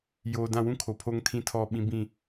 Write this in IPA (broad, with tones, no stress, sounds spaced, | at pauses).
j oː˨ d ã˦˨ w ũ˦ kʰ o˨ pʰ o˦ ŋ tʰ ĩ˦ tʰ ɔ˦˨ ɓ ĩ˦ b ĩ˦˨